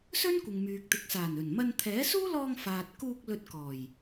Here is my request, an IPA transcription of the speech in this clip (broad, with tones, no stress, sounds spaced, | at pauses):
s ɵ˥ n kʷ ɪ˨ ŋ m yː˨ k̚ t̪ ɪ˨ k̚ s aː˨˩ n ɵ˨˩ n m ɐ˧ n t̪ʰ ɛː˨˥ s uː˥ l ɔː˧ ŋ f aː˨ t̚ k uː˧ k̚ l ɵ˧ t̚ k ɔː˨˩ j